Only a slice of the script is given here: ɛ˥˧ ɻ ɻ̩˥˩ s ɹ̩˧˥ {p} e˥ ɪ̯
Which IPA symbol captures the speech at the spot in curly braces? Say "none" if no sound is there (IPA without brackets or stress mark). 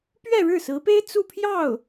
p